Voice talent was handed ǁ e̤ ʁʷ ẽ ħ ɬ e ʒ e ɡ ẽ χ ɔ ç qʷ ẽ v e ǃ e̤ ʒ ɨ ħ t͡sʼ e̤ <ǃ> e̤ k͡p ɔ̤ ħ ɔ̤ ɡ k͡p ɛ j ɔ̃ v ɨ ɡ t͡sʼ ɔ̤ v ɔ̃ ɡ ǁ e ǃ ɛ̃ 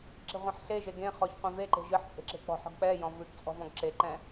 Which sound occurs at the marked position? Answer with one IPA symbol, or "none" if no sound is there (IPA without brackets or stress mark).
ǁ